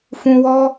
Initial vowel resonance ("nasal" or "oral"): nasal